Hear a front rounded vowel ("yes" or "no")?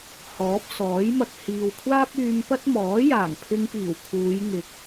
yes